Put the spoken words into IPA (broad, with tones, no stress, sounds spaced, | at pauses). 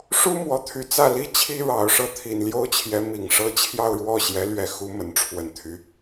ʂ u˥ m w ɔ˧˥ t̪ʰ y˧˥ t͡s ä˥˩ l i˥ t͡ɕʰ i˥ ɻ ɑ˨˩ ʊ̯ ʂ ɤ˥˩ t̪ʰ i˨˩ n l j o˥ ʊ̯ t͡ɕʰ j ɛ˧˥ m i˨˩ ŋ ʂ ɤ˥ t͡ɕʰ j ɑ˥˧ ʊ̯ ɻ w ɔ˥˩ ɕ j ɛ˧˥ l ɥ ɛ˥˩ x u˥ m ə˧˥ n ʈ͡ʂʰ w ə˨˩ n t̪ʰ y˧˥